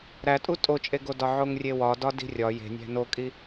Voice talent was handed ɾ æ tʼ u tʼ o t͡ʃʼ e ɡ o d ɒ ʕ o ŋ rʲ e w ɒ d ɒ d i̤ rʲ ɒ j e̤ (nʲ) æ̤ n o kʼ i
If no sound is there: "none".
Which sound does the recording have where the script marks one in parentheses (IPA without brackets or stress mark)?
nʲ